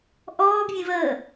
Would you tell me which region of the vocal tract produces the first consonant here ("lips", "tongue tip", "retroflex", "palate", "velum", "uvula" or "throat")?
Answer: throat